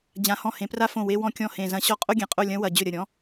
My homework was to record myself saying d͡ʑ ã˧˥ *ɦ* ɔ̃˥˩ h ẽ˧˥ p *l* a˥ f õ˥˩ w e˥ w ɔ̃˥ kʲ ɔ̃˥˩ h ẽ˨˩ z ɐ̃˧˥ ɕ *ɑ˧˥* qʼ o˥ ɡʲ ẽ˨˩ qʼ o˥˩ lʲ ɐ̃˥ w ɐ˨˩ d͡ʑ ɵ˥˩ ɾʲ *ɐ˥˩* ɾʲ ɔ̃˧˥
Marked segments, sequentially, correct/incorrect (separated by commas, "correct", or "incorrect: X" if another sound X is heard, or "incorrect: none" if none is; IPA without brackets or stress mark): incorrect: h, incorrect: r, incorrect: ɔ˧˥, correct